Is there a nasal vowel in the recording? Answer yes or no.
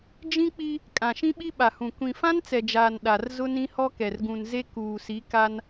yes